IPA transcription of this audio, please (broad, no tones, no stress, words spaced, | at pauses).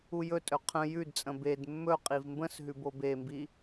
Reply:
ujɵtʼɵ qʰə̃ jʉdt͡sʼə̃ bed mːɵ qʼivmbə̃sɦʉ bobembi